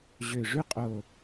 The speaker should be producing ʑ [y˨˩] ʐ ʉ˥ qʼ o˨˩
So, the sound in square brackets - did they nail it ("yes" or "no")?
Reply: no